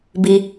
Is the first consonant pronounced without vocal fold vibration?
no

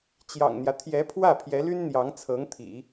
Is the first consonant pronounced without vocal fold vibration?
yes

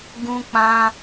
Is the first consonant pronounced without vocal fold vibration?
no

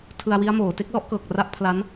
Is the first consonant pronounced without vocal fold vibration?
yes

